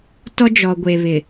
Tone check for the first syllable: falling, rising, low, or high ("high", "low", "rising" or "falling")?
high